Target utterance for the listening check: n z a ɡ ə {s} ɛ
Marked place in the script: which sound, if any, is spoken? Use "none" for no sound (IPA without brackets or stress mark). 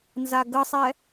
sˤ